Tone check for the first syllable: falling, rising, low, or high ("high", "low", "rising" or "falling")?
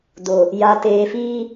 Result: low